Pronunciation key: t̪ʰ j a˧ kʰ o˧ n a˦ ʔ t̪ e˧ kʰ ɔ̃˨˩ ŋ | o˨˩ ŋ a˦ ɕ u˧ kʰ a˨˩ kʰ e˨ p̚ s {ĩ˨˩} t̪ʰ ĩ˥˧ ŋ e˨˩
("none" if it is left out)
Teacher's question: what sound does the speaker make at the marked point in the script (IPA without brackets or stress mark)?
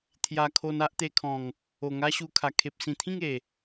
ĩ˨˩